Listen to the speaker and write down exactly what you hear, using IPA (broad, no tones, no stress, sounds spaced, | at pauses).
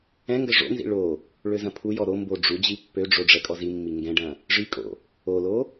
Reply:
ɛ̃ ŋ ɡ ɐ ʐ o̰ n z ḭ ɭ o | ɭ ø z ɐ̃ pʰ u j ɔ ɾ o m b o ɖ͡ʐ u d͡ʑ i pː ø ɖ͡ʐ o ɖ͡ʐ ɛ kʼ ɔ z i mː i ŋ ɡ ɛ̃ ɖ ɐ̃ | ʐ i kʼ o̰ | o l o